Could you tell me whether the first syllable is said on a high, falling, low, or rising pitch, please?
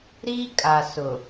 high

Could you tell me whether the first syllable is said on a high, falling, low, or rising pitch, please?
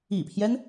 low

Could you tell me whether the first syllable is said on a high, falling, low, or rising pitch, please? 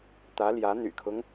rising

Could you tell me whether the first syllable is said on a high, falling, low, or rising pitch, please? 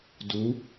rising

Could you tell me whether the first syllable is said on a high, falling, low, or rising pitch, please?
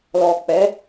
low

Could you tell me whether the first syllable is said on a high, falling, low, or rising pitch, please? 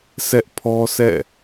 high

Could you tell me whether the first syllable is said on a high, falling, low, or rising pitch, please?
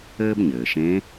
high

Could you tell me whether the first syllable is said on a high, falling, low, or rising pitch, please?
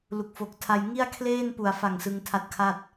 low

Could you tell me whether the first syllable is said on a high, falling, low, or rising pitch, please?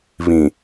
low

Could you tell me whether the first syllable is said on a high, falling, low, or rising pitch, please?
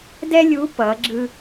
high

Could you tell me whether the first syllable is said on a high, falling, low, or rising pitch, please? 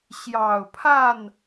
low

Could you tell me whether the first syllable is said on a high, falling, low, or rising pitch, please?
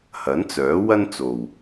rising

